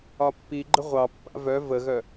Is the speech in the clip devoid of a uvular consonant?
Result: no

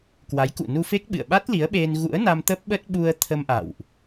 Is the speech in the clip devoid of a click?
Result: yes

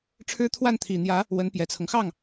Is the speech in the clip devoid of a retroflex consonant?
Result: no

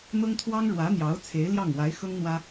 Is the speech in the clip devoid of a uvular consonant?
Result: yes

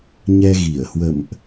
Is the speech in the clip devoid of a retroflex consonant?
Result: yes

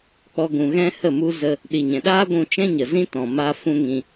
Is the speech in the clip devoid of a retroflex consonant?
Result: yes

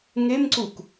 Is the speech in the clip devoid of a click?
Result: no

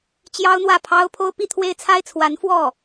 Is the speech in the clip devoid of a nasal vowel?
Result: yes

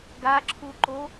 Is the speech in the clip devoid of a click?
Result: no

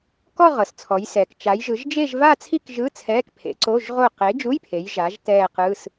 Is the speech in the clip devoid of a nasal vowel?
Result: yes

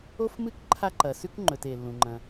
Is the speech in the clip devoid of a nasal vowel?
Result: no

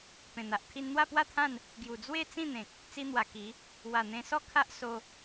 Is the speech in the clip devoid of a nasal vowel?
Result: no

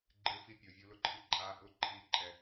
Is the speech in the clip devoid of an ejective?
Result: no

